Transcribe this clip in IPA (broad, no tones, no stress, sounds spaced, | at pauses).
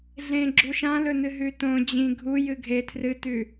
ɮ ẽ ɡ͡ǁ u ʃ ã l ɵ n ɨ ɦ ʉ t õ d͡ʑ ĩ ɡʱ u j ɨ ɡʱ e tʰ r ɨ t ʉ